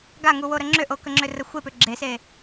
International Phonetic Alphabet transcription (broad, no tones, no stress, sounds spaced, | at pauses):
ɡ a ŋ u w o ɾ ə ŋ͡ǁ ʏ ʔ o k ə ŋ͡ǁ ʏ r ə xʷ e p ʏ ɡ͡ǁ e s e